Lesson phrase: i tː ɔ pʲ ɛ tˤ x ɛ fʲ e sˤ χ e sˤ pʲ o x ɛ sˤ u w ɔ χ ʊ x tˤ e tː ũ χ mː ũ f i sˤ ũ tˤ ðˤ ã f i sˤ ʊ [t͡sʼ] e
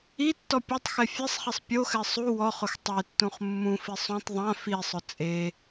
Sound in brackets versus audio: correct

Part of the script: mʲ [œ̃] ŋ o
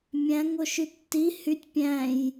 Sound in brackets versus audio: incorrect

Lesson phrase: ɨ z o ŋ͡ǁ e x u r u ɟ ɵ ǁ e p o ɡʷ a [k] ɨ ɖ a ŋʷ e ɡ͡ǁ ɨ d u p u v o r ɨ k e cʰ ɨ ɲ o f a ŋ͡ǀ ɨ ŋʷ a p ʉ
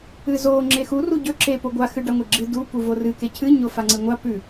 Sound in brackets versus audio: incorrect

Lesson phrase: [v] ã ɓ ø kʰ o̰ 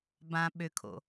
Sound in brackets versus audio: incorrect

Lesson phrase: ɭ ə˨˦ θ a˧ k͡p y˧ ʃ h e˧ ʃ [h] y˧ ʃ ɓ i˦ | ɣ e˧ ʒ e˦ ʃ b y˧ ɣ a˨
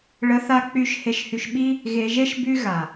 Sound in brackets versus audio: correct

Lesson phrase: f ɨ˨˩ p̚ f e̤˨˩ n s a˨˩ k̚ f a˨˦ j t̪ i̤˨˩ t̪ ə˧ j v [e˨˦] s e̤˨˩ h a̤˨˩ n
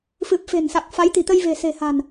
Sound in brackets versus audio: incorrect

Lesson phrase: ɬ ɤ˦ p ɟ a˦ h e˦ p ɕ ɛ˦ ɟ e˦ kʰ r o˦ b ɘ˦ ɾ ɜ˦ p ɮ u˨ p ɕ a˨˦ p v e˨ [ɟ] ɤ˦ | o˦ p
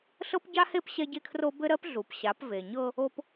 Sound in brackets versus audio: incorrect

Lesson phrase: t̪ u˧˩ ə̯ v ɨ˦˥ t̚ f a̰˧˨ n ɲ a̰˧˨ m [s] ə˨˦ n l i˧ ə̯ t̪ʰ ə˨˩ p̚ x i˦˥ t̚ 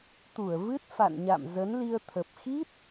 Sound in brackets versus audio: incorrect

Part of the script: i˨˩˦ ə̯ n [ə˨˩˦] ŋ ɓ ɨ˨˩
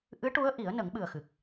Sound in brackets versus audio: correct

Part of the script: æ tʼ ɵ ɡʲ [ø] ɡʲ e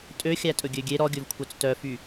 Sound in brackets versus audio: correct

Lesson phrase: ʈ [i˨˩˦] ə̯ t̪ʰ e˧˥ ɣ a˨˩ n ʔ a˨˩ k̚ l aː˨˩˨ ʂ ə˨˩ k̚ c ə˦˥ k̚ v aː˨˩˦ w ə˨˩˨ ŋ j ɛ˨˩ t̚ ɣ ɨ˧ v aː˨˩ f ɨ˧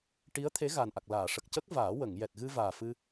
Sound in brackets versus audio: incorrect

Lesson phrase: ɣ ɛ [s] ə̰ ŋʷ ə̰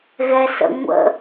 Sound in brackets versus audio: correct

